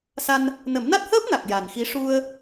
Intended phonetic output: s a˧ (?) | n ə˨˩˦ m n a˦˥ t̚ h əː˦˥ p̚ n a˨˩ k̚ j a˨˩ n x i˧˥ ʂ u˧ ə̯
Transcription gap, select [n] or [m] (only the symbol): n